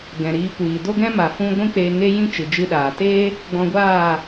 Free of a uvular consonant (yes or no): yes